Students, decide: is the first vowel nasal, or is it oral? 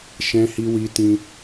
nasal